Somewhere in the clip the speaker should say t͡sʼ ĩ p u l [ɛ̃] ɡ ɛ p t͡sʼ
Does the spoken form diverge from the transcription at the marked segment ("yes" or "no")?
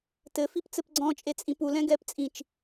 no